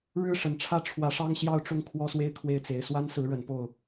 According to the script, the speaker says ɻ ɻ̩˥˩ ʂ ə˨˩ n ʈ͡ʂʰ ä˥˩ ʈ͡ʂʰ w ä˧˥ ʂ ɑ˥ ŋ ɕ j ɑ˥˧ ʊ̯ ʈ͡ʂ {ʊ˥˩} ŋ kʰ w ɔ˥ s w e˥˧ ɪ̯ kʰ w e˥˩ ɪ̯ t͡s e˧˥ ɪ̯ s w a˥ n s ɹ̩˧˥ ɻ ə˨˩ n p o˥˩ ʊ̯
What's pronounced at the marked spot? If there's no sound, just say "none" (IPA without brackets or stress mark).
ʊ˥˩